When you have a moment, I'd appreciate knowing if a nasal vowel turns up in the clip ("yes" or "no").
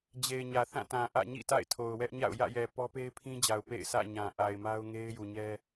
yes